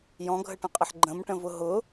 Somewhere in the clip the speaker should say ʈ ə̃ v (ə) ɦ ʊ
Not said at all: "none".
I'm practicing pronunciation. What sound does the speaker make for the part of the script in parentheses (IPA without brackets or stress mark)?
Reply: ʊ